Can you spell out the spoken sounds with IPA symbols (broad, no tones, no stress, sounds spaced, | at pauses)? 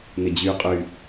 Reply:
n ɪ d͡ʑ y qʼ y